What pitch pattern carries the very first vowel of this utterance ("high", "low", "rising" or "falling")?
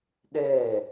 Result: falling